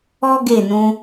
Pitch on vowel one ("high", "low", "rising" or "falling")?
high